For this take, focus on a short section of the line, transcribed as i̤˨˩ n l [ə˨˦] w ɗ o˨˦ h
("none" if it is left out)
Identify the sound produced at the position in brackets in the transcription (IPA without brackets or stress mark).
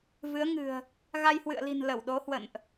ə˧˩